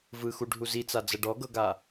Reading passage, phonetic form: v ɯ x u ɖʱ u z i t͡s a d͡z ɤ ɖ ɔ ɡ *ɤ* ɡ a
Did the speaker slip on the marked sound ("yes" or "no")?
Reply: no